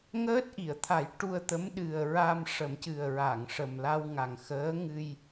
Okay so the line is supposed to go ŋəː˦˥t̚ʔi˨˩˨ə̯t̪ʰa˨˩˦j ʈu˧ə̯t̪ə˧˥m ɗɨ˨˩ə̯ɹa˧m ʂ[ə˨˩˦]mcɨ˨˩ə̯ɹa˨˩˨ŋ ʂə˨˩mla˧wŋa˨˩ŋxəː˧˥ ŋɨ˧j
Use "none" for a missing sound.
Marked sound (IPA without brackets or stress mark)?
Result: ə˨˩˦